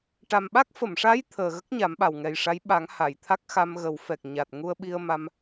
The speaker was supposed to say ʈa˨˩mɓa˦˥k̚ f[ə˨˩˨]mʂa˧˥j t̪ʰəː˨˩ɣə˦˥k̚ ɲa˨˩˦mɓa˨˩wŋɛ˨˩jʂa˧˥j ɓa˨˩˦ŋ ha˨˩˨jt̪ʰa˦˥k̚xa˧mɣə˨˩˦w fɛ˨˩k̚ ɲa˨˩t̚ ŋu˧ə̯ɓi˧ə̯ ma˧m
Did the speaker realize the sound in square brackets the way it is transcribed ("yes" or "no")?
yes